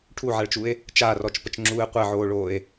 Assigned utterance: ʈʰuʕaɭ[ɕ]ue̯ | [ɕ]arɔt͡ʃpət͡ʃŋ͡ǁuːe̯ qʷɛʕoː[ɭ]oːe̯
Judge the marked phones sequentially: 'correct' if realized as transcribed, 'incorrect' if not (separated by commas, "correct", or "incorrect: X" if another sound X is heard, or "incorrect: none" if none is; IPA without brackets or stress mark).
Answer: incorrect: t͡ʃ, incorrect: t͡ʃ, correct